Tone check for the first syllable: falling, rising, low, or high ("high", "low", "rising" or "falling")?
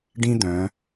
high